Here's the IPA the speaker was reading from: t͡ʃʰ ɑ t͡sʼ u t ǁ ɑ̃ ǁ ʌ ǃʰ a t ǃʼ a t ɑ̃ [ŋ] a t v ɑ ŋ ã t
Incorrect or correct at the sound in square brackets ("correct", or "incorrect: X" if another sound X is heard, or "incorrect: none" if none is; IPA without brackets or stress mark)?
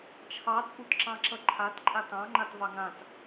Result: incorrect: ŋ͡ǃ